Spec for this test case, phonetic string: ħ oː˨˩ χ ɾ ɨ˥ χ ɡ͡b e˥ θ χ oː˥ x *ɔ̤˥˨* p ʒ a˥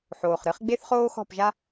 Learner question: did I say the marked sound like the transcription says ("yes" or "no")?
yes